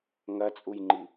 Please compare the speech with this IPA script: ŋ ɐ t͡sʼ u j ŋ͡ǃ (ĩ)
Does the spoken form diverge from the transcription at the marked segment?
yes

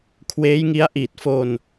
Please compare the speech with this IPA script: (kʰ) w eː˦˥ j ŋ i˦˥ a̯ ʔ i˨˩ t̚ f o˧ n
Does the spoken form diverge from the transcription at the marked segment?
no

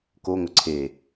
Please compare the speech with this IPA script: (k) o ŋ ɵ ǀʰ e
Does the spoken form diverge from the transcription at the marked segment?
no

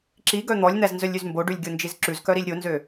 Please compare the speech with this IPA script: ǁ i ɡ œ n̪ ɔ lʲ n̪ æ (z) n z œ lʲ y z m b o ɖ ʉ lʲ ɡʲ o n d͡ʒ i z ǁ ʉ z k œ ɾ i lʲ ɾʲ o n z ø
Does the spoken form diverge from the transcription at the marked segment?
no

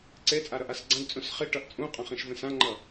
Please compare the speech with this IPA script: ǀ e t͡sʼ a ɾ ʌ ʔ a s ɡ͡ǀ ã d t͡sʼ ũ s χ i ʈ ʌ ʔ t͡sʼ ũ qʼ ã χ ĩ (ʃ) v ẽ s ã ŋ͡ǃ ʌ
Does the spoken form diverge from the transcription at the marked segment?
no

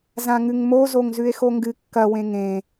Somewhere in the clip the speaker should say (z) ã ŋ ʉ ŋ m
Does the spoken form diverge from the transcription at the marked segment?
no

